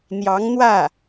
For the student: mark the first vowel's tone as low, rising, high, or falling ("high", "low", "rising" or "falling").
rising